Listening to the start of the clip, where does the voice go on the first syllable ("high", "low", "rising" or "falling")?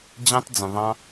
high